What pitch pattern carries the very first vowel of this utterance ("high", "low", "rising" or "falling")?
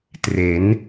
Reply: rising